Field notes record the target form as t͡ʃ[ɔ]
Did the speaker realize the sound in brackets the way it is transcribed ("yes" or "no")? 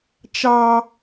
no